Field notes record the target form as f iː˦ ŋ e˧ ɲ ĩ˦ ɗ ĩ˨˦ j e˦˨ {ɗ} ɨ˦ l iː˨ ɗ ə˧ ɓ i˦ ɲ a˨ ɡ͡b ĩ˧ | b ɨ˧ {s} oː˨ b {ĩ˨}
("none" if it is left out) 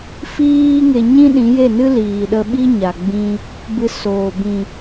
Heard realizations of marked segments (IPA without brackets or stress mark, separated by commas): n, s, ĩ˨